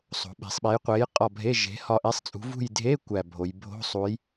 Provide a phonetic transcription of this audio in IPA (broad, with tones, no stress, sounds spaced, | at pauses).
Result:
sˤ o̤˩˧ ɓ e̤˩˧ sˤ ɓ e˨˥ j qʷ e˨˥ j qʼ ɒ˦˨ bʱ e˧˥˧ ʒ e̤˨˥ h ɒ˦˨ ʔ e˧˥˧ sˤ t͡sʼ ṳ˨˥ v ṳ˦˨ j dʱ e˧˥˧ kʷ æ˦˨ bʱ o˩˧ j bʱ o̤˧˥˧ sˤ u˨˥ j